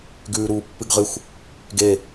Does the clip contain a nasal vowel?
no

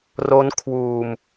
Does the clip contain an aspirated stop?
yes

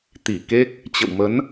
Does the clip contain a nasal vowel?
no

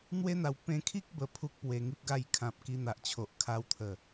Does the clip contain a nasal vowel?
yes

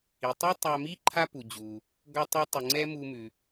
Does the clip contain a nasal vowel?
no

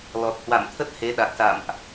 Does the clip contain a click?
no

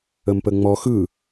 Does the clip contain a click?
no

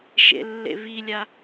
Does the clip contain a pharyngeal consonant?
no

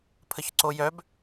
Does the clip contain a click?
yes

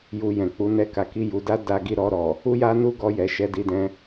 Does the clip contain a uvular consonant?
no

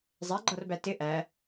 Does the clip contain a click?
yes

